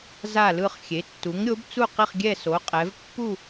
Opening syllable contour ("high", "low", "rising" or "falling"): falling